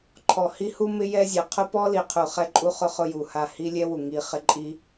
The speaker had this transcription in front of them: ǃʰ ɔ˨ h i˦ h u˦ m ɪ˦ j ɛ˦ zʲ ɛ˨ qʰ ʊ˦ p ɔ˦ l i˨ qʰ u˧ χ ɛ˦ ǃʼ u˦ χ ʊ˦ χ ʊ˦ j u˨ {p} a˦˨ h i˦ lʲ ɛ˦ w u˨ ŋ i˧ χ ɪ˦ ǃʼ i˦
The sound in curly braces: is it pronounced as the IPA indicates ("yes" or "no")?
no